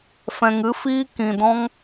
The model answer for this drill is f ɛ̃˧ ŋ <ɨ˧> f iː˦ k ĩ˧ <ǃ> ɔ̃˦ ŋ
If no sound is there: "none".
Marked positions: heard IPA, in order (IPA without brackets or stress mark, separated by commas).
ɨ˦, d